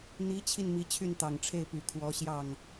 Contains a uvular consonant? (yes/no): no